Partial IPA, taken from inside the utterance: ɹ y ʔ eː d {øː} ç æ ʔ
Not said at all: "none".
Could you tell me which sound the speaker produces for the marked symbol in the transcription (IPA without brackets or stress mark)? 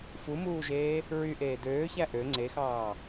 øː